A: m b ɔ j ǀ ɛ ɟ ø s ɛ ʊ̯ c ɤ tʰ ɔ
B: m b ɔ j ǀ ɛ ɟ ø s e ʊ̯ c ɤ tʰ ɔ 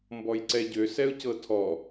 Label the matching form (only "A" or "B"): A